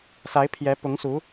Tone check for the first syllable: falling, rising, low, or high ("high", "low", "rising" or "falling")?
rising